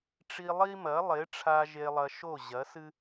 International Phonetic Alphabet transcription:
ʈ͡ʂ i˧ lˠ i˦ m ɐ˨˦ lˠ e˨˦ ʈ͡ʂʰ a˧ ʒ e˧ lˠ ɐ˧ ʃ o˦˨ ʑ ɐ˨˦ s ɨ˦

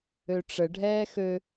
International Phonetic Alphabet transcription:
ø ʈ͡ʂ ə ɖʱ ɛː x ø

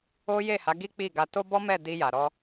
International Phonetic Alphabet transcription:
o˦ j e˦˨ h a˨˦ ɡ i˦ k͡p i˦˨ ɡ a˧ t o˦ b ɔ˦ m ɛ˦˨ d i˧ j a˨ ɾ ɔ˧

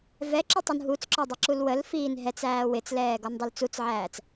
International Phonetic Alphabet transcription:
v ɛ ǁ ə tˤ u n ɦ u t͡s ǁ ɒ dˤ ɪ ǁ u l w ə l f iː n ɦ ɛ t͡s æː w ɪ t͡s l ɛː ɡ ɔ n dˤ ʊ l t͡s u t͡s ʕ æː t͡s

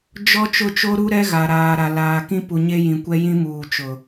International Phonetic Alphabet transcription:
d͡ʒ ɔ˦ t͡ʃ ʊ˦˨ t͡ʃ o˦ ɾ u˦ ɾ ɛ˦ ɣ a˨ ɾ aː˨ ɾ a˨ l aː˨ k ĩ˦ p u˨ ɲ e˦ j ĩ˨ kʷ ɛ˦ j ĩ˦ m uː˨ t͡ʃ ʊ˨

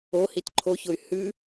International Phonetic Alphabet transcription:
o h i t ǃʰ o ç ʊ y̯ h ʉ

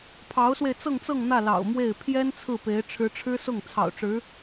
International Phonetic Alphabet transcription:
pʰ ɑ˧˥ ʊ̯ s w e˧ ɪ̯ t͡s ɤ˥˧ ŋ t͡s ɤ˥˧ ŋ n̪ ä˥˩ l ɑ̰˨˩ ʊ̯ m w e˥˩ ɪ̯ pʰ j ɛ˥ n t͡sʰ ɹ̩˥˩ p e˧˥ ɪ̯ ʈ͡ʂʰ ɻ̩˧˥ ʈ͡ʂʰ ɻ̩˥ s ʊ˥˩ ŋ t͡sʰ ɑ̰˨˩ ʊ̯ ʈ͡ʂ ɻ̩˧˥

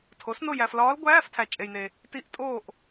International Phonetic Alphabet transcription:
tʰ o˩˥ s n o˦˨ j æ˨ f l ɒː˧˥ l ɡʷ æː˧˥˧ f tʰ æ˨ t͡ʃʼ e˨ j n e˨ | t i˧˥˧ ʔ tʼ oː˦˨ ʔ

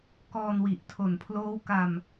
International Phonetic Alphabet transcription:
k ɔː˧ n w i˨˩ ʔ tʰ o˨˩ n pʰ l oː˦˥ w k a˧ m

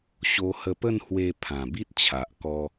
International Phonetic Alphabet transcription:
ɕ o˧ h ə˧ p ə˥˧ n h w e˧ pʰ ã˨˩ b i˦ t̚ t͡ɕʰ a˨ ʔ k ɔ˧

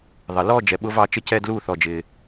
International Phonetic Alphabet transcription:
ðˤ ə˩ l ɔ˦˨ d͡ʒ ɛ˩ ɓ ʊ˦˥ v ɑ˦˨ t͡ʃ ə˦˥ c ɛ˦˨ d l uː˦˨ θ ɔ˩ d͡ʒ ɪː˩

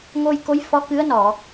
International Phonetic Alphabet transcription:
ŋ o˧ j k o˧˥ j f ɔ˧˥ k ɨ˧˥ ə̯ n ɔ˨˩˨

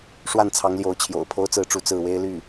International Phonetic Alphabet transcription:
ʂ w a˥˩ n t͡sʰ ɑ˧˥ ŋ l j o˧˥ ʊ̯ t͡ɕʰ j o̰˨˩ ʊ̯ pʰ o˥ ʊ̯ t͡s ɹ̩˥˧ ʈ͡ʂ u˥˧ t͡s ɹ̩˥˩ w e˥ ɪ̯ l y˥˩

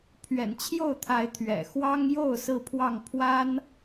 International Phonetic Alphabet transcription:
pʰ ɥ ɛ̰˨˩ n t͡ɕʰ j o˥˨ ʊ̯ t̪ʰ a˨˦ ɪ̯ t̪ʰ ɥ ɛ̰˨˩ x w ɑ˦ ŋ j o˥˨ ʊ̯ s ɹ̩˥˨ pʰ w ɑ˥˨ ŋ pʰ w a˦ n

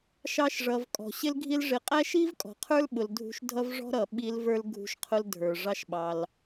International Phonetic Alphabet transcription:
ʃ ɑ˧ ʃ ʐ ʌ˨ v kʼ ɔ̤˨ ɕ ɪ˦ l ɡʱ i˦ l ʐ ɪ˧ qʼ æ˦ ʃ i˦ v kʼ ɔ̤˨ qʰ ə˞˦ l ɓ ʊ˧ l dʱ ṳ˦ ʃ dʱ ʌ˦ v ʐ ɔ̤˦ ɾ ʌ˨ ɓ i˧ l v ə˞˦ l ɡʱ ṳ˧ ʃ qʰ ʊ˧ l dʱ ə˞˨ ʐ ɑ˦ ʃ ɓ ɑ˧ l

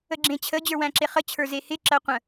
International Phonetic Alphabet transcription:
ə ɡ͡ǁ ẽ t͡ɕʰ ə d͡ʑ ə˞ w æ̃ ǁ e χ ə t͡ɕʰ ə˞ z e h ɪ ǁ ɜ qʷ ə̃

